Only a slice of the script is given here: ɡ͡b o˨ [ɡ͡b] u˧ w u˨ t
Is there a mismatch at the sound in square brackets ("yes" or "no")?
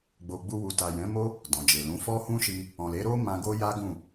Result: no